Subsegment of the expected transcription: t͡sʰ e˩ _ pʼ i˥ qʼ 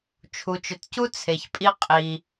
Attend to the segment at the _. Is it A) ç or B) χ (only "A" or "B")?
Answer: A